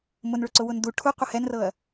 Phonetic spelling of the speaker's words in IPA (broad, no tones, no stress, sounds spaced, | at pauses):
m ʊ n ɭ ʊ ǀ ʊ w ʊ n d u ʈʰ u qʷ ɘ h ɛ n r ɤ ɐ̯